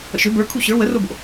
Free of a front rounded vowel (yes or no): no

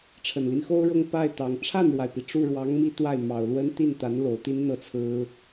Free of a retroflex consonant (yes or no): no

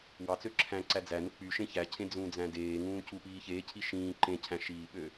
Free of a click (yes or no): no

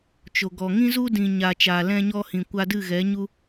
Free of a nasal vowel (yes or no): no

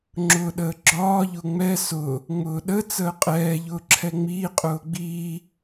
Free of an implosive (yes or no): no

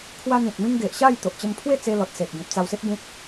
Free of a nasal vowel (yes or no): no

